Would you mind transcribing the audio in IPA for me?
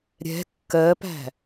ɾʲ ɛ̤ kː ɜ p æ̤

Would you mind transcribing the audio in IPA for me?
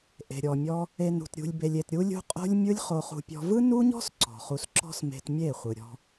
ʔ e̤˨ ɾʲ ɔ˨ mʲ ɔ˧ | e˨ n ṳ˨ t ɾʲ ṳ˧ lʲ b e˧ lʲ e˨ t ɾʲ u˧ lʲ ṳ˧ qʼ o̤˦ lʲ mʲ ɯ˦ lʲ χ o˧ χ ṳ˧ pʲ ɔ̤˧ v ɯ˦ n u˦ ɲ ɔ̤˦ s ǀ ɔ̤˨ χ u˧ s ǁ ɔ̤˦ s m e̤˧ t mʲ e˦˨ χʷ ɯ˨ ɾʲ ɔ̤˧

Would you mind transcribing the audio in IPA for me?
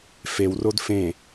f e w r o d f ẽ

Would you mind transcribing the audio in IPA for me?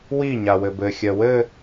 w i ɲ a w ɘ b ɘ xʲ ɜ w ɘ

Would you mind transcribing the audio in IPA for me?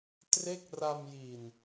t r e˥˩ k̚ r a˧ m j i˨˩ n

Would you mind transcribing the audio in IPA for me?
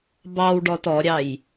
b ɑ w ɖ ɔ t ɔ ɾʲ ɑ j

